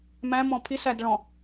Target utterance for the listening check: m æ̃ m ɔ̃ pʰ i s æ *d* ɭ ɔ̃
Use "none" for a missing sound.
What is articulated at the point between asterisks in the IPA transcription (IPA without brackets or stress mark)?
d